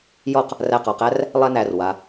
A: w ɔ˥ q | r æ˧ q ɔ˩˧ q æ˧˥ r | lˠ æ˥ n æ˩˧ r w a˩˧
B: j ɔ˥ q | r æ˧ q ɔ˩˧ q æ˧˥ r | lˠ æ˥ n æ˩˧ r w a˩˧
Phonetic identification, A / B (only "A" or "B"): B